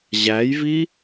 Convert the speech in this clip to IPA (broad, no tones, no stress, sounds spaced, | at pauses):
ʑ æ j v i